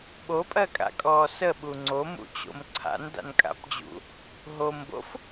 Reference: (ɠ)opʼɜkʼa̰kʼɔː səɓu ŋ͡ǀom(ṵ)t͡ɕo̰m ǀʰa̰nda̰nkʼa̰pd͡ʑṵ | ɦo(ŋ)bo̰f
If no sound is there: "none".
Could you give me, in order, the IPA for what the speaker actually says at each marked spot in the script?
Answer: ɓ, ṵ, m

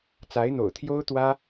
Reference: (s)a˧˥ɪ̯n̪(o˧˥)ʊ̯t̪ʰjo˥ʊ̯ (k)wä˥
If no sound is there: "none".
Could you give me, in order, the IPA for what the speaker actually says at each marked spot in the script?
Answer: t͡s, o̰˨˩, t̪

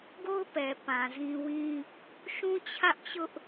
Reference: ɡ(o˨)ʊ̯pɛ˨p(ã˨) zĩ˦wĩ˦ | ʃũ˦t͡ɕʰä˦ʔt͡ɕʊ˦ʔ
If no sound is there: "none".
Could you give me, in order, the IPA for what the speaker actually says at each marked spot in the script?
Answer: o˦, ã˨

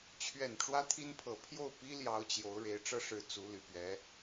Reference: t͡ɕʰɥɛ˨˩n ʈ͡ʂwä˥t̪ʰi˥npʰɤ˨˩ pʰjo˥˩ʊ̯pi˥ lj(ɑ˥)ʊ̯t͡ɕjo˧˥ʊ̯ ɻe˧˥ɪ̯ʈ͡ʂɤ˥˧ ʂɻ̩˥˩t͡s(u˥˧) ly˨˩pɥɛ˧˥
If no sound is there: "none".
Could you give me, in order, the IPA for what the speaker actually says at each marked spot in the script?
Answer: ɑ˥, u˥

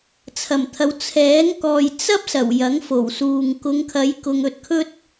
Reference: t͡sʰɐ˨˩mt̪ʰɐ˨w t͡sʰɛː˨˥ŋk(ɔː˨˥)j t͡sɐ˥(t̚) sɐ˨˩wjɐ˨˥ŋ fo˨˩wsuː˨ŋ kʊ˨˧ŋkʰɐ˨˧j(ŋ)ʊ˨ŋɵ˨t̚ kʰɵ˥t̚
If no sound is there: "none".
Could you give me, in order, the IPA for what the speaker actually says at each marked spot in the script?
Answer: ɔː˨, p̚, k

